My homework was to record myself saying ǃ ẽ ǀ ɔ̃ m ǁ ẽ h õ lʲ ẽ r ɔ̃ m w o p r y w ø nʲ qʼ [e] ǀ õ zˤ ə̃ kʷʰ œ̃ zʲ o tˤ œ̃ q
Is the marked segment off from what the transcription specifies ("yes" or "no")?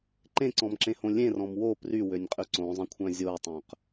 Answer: yes